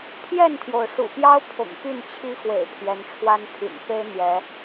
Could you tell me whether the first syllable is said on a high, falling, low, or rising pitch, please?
falling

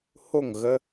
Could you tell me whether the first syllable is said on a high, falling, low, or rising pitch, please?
falling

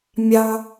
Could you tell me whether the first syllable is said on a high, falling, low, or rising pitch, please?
high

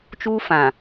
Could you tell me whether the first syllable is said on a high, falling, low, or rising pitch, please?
high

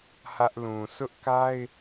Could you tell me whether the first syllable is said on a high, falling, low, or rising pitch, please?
high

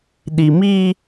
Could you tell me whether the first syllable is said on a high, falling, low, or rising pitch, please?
low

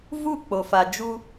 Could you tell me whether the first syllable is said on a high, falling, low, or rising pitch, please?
falling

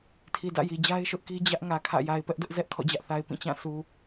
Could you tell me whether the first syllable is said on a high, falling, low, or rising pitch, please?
low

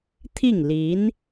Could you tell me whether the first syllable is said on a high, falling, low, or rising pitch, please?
falling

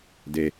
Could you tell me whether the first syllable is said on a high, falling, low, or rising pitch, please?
low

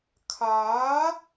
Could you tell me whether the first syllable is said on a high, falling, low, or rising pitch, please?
rising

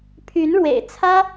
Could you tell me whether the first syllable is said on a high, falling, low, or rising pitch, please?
rising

